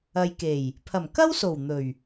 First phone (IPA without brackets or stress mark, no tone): ɐ